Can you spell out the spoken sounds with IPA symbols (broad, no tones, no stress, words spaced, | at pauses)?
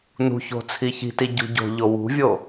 nṳço̤ t͡sʰiçi̤ti ɟṳɟo̤ʎo wṳvʲo